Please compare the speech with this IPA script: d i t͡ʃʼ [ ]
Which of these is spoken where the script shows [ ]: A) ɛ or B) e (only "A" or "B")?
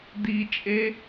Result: B